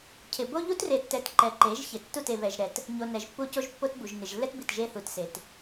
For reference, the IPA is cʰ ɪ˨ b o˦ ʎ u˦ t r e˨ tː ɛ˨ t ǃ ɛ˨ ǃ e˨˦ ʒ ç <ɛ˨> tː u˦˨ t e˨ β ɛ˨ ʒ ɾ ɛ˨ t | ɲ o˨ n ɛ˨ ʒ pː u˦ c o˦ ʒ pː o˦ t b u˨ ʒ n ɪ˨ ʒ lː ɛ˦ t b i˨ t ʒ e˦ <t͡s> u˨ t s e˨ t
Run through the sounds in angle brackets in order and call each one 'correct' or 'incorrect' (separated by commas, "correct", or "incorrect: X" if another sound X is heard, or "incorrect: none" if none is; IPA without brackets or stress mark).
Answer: incorrect: ɪ˨, incorrect: θ